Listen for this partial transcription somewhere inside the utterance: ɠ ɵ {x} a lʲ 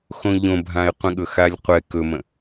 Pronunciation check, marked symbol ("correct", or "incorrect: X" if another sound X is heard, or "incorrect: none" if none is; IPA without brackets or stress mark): correct